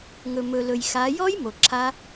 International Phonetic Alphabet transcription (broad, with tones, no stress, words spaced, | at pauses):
ŋɵ˩mɵ˩lɵ˩j xa˩˧jɔ˦˥j mo˩ǁʰa˦˥